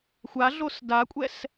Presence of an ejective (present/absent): present